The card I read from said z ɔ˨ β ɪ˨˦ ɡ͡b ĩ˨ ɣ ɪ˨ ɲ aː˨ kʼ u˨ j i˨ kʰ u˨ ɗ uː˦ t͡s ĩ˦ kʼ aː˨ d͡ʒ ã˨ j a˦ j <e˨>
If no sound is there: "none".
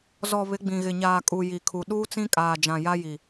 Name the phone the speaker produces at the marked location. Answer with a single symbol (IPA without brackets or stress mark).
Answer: i˨